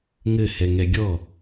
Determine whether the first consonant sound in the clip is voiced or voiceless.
voiced